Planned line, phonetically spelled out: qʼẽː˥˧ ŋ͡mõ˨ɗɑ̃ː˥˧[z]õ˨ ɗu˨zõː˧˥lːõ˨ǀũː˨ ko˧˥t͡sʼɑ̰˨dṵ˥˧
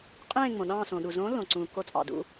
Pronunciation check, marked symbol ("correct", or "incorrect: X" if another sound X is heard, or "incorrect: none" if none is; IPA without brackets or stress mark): incorrect: s